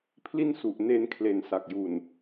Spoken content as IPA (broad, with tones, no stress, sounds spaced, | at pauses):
pʰ l i˥˩ n s u˨˩ ʔ n e˧ n kʰ l e˨˩ n s a˨˩ k̚ j u˨˩ n